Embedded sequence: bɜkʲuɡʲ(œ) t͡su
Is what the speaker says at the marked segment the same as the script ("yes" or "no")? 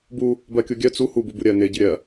yes